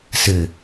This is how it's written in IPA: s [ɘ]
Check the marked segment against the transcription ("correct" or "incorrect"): correct